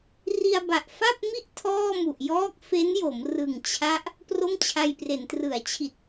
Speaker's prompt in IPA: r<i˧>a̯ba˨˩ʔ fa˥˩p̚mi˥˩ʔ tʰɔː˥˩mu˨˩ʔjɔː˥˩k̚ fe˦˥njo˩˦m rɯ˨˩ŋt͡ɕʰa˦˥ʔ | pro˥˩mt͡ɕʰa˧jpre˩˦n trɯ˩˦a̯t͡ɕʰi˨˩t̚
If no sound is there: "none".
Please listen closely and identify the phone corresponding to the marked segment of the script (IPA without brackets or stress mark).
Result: i˧